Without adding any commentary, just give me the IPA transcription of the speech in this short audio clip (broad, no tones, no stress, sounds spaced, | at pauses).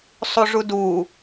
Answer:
sˤ u ʐ u d u